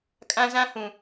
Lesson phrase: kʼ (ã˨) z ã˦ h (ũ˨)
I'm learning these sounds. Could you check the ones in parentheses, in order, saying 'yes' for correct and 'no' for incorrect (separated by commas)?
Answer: no, yes